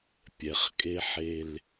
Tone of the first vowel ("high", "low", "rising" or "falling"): low